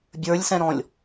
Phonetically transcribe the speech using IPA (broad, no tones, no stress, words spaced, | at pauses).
bʲə˞lʲsɛ̃ɾɔ̃lʲ